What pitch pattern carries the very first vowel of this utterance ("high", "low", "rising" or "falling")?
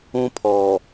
high